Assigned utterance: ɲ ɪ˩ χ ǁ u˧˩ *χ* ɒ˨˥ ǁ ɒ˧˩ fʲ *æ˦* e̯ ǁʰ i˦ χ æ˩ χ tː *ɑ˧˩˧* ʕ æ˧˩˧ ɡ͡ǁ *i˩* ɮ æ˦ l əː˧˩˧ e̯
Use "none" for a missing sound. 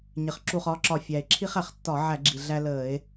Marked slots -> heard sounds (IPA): χ, æ˩, ɒ˧˩˧, i˩

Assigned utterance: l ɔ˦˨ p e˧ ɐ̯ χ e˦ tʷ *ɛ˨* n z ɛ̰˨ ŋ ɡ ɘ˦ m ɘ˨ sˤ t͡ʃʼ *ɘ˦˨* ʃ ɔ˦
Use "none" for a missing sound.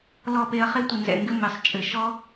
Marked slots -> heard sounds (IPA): ɨ˨, ɘ˨

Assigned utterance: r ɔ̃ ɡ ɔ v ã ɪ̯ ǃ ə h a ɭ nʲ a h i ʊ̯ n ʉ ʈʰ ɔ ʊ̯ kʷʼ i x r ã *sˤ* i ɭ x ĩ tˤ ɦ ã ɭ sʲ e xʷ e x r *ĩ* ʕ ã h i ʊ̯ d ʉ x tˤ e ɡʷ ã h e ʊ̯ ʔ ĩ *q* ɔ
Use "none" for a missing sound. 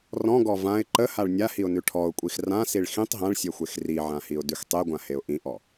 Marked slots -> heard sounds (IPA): s, i, ʔ

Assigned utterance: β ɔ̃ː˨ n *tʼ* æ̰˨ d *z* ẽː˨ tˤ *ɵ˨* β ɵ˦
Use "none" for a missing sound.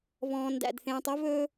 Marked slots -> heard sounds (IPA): d, θ, ɵ˦

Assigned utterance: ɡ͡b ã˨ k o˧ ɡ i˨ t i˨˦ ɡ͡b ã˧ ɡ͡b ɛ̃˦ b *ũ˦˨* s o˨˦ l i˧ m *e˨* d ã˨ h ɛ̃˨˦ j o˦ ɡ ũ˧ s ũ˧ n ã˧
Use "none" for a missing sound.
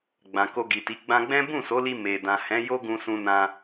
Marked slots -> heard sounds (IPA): ũ˦˨, e˨

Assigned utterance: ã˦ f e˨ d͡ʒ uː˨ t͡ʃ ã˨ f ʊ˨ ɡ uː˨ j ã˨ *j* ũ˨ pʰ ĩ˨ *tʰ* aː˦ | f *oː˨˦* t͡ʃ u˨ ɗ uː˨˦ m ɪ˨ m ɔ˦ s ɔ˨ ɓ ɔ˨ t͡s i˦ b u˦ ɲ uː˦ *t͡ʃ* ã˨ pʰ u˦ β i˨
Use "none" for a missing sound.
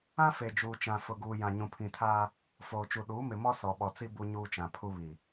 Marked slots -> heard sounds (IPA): ɲ, tʰ, oː˨, t͡ʃ

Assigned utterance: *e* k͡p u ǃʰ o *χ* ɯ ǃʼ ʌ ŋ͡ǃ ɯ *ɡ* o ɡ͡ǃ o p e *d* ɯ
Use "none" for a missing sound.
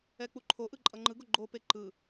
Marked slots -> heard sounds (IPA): ɛ, ʔ, ɡ, ǃ

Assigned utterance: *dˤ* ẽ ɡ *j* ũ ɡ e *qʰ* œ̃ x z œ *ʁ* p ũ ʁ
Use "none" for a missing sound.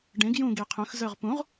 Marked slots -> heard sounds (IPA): ɖ, j, qʰ, ʁ

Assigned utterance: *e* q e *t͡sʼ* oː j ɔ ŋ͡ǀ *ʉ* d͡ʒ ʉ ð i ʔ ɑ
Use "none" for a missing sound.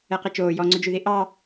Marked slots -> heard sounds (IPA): ɛ, t͡ʃ, ʉ

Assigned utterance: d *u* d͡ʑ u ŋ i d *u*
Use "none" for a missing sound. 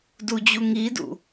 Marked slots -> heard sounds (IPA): u, ṵ

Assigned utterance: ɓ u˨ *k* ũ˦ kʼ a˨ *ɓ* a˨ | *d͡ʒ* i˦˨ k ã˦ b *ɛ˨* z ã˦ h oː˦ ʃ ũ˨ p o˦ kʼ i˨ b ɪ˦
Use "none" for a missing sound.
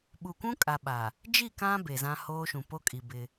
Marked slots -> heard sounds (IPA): kʷ, ɓ, d͡ʒ, e˨

